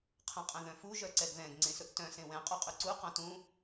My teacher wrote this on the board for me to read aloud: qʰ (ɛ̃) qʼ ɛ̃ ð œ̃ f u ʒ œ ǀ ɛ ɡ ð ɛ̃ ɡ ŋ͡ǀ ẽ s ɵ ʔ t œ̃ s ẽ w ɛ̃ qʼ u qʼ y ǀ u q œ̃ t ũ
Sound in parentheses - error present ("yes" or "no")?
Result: no